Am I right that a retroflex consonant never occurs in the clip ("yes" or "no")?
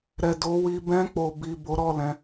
yes